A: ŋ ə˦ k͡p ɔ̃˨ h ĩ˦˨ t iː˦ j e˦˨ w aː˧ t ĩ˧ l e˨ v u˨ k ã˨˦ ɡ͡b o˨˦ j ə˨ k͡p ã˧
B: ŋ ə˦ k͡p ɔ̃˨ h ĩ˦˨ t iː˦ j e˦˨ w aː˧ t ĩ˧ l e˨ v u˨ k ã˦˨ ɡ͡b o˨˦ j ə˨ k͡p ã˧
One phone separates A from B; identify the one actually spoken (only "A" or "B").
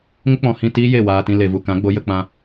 A